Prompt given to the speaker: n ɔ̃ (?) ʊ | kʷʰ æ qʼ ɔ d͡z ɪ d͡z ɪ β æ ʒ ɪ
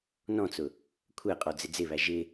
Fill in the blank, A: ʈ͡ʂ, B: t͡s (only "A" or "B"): B